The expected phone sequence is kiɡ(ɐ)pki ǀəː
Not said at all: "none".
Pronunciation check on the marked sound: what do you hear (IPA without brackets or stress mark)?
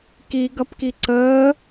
ɐ